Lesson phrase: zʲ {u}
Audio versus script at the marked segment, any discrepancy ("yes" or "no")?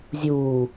yes